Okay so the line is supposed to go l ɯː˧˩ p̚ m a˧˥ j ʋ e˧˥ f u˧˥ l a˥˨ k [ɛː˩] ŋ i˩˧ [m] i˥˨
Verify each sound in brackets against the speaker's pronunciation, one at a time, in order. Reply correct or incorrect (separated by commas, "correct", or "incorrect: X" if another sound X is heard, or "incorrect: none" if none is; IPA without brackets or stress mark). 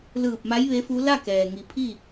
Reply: correct, incorrect: pʰ